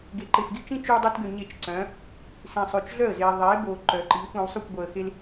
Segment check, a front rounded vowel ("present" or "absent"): present